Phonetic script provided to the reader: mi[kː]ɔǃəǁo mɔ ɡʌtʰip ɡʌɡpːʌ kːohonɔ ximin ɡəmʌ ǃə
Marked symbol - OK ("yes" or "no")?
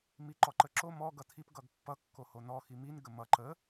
no